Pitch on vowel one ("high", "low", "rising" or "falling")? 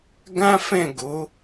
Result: high